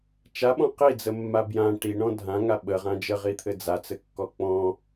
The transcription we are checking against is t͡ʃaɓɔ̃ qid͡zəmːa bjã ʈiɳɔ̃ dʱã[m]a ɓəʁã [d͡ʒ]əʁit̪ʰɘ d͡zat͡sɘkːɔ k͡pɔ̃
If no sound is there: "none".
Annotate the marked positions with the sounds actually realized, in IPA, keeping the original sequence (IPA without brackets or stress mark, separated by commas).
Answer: ŋ, d͡ʒ